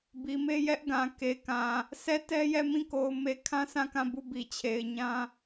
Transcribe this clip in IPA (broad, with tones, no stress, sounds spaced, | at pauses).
b i˨ m e˦ j ɛ˦ ʔ ɡ ã˨ k e˨ k ã˨ | s ɛ˦˨ t ɛ˦ j ɛ˦˨ m ĩ˦˨ k o˨ ʊ̯ m e˦˨ kʰ ã˦ s ã˦˨ k ã˦˨ b u˦˨ b i˨ t͡ɕʰ e˨ ɪ̯ ɲ ã˦